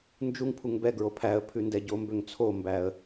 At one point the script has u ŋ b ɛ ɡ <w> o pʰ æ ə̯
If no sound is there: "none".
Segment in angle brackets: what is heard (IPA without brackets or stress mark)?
ɹ